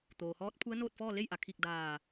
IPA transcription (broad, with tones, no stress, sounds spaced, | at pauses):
t̪ oː˩ h ɔː˧˥ t̚ pʰ u˧˥ ə̯ n oː˥˨ t̚ f ɔː˥˨ l e˥˨ j ʔ a˩ kʰ i˧˩ k̚ d aː˧˩